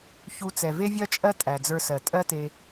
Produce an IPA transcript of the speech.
ç u˧ t͡s ɛ˩ v e˥ vʲ ɜ˥ t͡ʃʼ ɜ˥ tʼ æ˩ d͡z ə˞˧ s ɜ˩ tʼ ɜ˥ t e˧

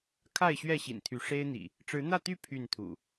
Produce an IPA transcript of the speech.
kʰ a˥˨ ɪ̯ ɕ ɥ ɛ˥˨ ɕ ḭ˨˩ n t̪ʰ y˨˦ ʂ e˦ ɪ̯ n̪ ḭ˨˩ | ʈ͡ʂ ɻ̩˨˦ n̪ ä˥˨ t̪ y˥˨ pʰ y˥˨ n t̪ʰ ṵ˨˩

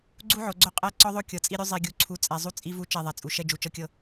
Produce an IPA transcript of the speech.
ɡ͡ǀ u˦ ʕ o˨ ɡ͡ǀ o˦ qʼ ɛ˦˨ ǀ ɔ˦ ðˤ o˦ kʲ ɤ˨ t͡sʼ i˦ ɾʲ u˦ zˤ i˨ ɡʲ u˨ ǀʰ u˨˦ t͡sʼ ɛ˨ zˤ u˦ t͡sʼ i˦ v u˦ t͡ʃ ɛ˦˨ ðˤ ɛ˨ t͡sʼ u˨ ʃ ɛ˦ d͡ʒ u˨ t͡ʃ ɤ˦ kʲ ɤ˦

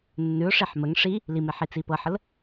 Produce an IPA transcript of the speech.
nː ʉ ʊ̯ ʂ e ħ m ə ŋ ʂ i | l i m e ħ i t͡s i p ɤ ħ ə l

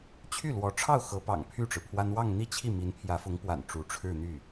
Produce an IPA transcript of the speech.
t͡ɕʰ y˥˩ l w ɔ˧˥ ʈ͡ʂʰ ɑ˥˩ ʊ̯ x ɤ˧˥ p ɑ̰˨˩ ŋ pʰ y˥˩ ʈ͡ʂ ɻ̩˩ pʰ w a˥ n w ɑ˥˧ ŋ n̪ i˥˧ t͡ɕʰ i˥˩ m i˧˥ n pʰ j ä˧˥ f ʊ˧˥ ŋ p w a̰˨˩ n ʈ͡ʂ u˧˥ ʈ͡ʂʰ ɻ̩˥˧ n̪ y˥˩

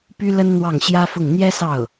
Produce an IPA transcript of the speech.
p y˥ l ə˥ n n̪ w ɑ˥˩ ŋ ɕ j ä˥ f ʊ˥˩ ŋ n̪ j ɛ˥ s ɑ˥˩ ʊ̯

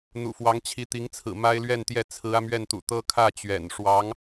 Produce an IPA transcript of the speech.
n̪ ṵ˨˩ f w ɑ˧˥ ŋ t͡ɕʰ i˧˥ t̪ i˧˥ ŋ t͡sʰ ɹ̩˨˩ m a˥ ɪ̯ l ɥ ɛ˥˧ n t̪ j ɛ˥˩ t͡sʰ ɹ̩˧˥ ä˧ m ɥ ɛ˥˩ n t̪ ṵ˨˩ t̪ ɤ˥ kʰ ä˥˩ t͡ɕ ɥ ɛ̰˨˩ n ʂ w ɑ˧˥ ŋ

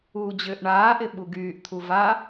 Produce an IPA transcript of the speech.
uː d͡ʑ ʏː ʔ ɳ aː ʔ ɪ ɓ u ɡ yː ʔ t̪ʰ u v a

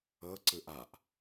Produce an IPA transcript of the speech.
ɤ ǀ ɯ ʔ a ʔ

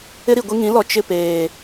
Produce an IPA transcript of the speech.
ɪ˦ ɾ i˨ ɡʷ i˦ ŋ ĩ˨˦ l ɔ˨ t͡ʃ ɪ˦˨ p eː˨

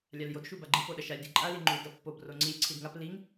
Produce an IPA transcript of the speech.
lʲ a l j o d ʃ u b a ɡ͡ǃ i p o ɗ ɐ ʃ a lʲ d i ǃʼ a l i ŋ͡ǃ u d ɐ pː o b r o ŋ͡ǀ i lʲ ǀʰ i d ŋ a p l i ŋ

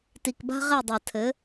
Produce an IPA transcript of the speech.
t i˨ k b a̤˦ ʁ ɛ˦˨ dˤ a˨ tʰ ɘ˨˦

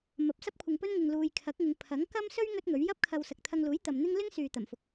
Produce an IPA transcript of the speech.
m ɐ˨˥ p̚ s ɐ˥ p̚ kʷʰ ɪ˧ ŋ p ɵ˥ n ŋ ɪ˨ ŋ l uː˨ j kʰ ɐ˨˥ k̚ ŋ ɪ˨˧ ŋ pʰ ɐ˨˥ ŋ k ɐ˥ m s ɵ˥ ɥ ŋ ɵ˥ t̚ ŋ ɵ˨˥ ɥ j ɐ˥ p̚ kʰ ɐ˧ w s ɐ˨ k̚ t̪ʰ ɐ˧ ŋ l uː˨˥ j t̪ ɐ˨ m n̪ ɪ˥ ŋ l ɪ˥ ŋ s yː˨ t̪ ɐ˨˩ m f ʊ˨˥ k̚

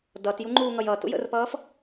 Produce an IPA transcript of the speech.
d ʌ t j u ŋ͡ǃ uː ŋ ʌ j ʌ t ṵ j ə̰ r p ʌː f

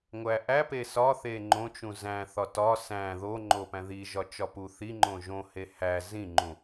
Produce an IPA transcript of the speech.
ŋʷ æ ʔ æ p e s ɒ θ e ŋ͡ǃ õ t͡ʃ ũ z æ̃ θ ɒ t ɒ s æ̃ ð o ŋ͡ǃ o p æ̃ ð i ʒ ɒ t͡ʃ ɒ p u θ i ŋ͡ǃ õ ʒ õ h e h æ z ĩ ŋ͡ǃ ũ

